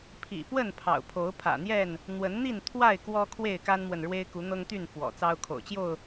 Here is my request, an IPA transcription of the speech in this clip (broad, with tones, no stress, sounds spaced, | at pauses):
pʰ ḭ˨˩ p w ə˥˨ n pʰ ɑ̰˨˩ ʊ̯ pʰ o˨˦ ʊ̯ pʰ ä̰˨˩ n̪ j ɛ˥˨ n | n̪ w ə˨˦ n n̪ i˥˨ n t̪ʰ w a˥˨ ɪ̯ k w ɔ˦ kʰ w e˥˨ ɪ̯ k a˦ n m w ə˨ n ɻ w e˦ ɪ̯ k u˨˦ n̪ ɤ˦ ŋ t̪ y˥˨ n f w ɔ̰˨˩ t͡s ɑ˦ ʊ̯ kʰ o̰˨˩ ʊ̯ t͡ɕ j o˥˨ ʊ̯